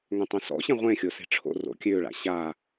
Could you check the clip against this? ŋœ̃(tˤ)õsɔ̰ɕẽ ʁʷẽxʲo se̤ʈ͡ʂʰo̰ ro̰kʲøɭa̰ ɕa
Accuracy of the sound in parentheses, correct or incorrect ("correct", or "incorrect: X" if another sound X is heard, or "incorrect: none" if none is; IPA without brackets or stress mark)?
correct